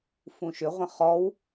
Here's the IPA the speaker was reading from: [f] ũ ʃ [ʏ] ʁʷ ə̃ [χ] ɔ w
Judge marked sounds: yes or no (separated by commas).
yes, yes, yes